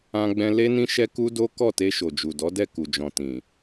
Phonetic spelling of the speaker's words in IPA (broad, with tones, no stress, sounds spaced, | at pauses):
ã˧ ɡ͡b ɛ̃˧ l e˦ n ĩ˦ ʃ ɛ˦ k u˦ d o˦ k ɔ˦˨ t e˧ ʃ o˨ d͡ʒ u˨ d ɔ˨˦ d ɛ˦˨ k u˨ d͡ʒ ɔ̃˨ t ĩ˨